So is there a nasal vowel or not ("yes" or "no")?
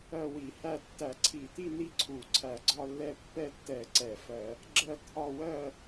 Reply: no